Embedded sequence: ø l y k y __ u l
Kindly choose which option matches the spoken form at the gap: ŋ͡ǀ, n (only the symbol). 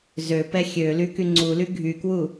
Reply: ŋ͡ǀ